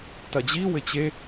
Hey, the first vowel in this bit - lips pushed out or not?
no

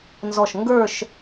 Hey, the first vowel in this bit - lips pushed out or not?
yes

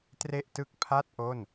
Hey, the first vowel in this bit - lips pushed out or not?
no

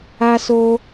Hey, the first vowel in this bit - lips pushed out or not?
no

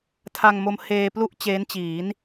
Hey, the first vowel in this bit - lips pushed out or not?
no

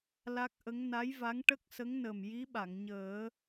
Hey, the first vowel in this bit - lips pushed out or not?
no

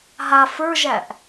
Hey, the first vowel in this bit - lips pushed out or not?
no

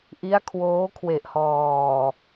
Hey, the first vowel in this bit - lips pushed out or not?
no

